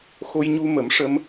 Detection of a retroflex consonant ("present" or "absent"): present